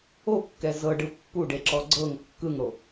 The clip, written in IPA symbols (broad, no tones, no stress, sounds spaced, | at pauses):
o kː ɛ z ɤ ɖ ɯ pː u ɖ e ǁ ɔ ɡ͡ǀ ɤ ŋ kː ɯ ŋ ɽ o